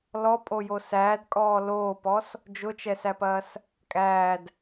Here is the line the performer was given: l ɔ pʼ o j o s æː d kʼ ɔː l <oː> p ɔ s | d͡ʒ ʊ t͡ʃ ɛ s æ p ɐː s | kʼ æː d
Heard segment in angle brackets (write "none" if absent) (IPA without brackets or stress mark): oː